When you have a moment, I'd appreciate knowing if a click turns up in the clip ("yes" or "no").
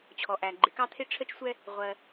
yes